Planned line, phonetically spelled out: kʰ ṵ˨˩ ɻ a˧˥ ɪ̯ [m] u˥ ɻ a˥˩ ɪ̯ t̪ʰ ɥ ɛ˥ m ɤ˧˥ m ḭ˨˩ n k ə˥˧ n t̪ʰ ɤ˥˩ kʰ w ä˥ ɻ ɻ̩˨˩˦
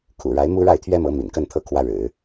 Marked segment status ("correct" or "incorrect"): correct